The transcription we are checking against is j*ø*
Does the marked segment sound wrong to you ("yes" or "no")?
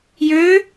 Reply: no